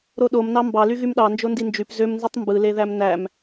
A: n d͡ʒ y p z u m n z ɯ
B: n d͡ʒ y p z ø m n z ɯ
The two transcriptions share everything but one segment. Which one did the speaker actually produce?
B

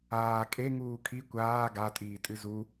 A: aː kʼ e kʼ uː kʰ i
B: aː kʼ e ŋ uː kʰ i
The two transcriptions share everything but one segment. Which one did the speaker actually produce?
B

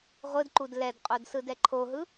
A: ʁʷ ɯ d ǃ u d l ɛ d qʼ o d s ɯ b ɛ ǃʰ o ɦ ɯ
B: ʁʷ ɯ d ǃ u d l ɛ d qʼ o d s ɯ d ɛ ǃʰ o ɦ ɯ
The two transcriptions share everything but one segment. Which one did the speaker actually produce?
B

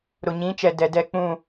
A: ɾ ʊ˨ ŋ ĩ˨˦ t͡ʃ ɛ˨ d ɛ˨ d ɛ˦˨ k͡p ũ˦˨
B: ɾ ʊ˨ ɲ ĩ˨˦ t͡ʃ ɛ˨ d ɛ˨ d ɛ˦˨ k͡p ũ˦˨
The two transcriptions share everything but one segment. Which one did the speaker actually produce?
B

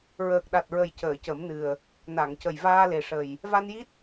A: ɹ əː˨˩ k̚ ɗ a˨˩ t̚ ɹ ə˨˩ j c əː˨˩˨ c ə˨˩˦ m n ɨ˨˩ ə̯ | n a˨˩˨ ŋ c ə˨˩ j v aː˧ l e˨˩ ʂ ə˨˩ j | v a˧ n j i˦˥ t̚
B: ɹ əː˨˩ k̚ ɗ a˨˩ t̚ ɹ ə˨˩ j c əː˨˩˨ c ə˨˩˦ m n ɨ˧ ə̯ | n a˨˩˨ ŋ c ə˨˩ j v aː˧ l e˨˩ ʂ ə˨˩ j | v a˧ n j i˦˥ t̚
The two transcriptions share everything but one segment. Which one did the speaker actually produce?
A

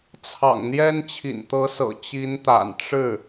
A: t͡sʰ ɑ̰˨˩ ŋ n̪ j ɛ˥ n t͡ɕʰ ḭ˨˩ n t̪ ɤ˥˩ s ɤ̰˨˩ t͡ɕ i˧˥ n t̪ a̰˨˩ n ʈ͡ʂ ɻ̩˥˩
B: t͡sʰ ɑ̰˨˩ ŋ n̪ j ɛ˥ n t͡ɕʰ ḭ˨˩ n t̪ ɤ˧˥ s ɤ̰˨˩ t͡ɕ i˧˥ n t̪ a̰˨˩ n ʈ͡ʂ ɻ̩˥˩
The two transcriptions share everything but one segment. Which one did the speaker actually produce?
B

